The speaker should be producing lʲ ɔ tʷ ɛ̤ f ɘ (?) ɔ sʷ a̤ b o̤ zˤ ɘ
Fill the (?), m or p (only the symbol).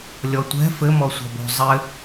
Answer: m